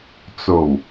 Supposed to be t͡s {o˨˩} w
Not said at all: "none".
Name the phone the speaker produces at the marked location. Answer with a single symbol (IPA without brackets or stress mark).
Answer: o˨˩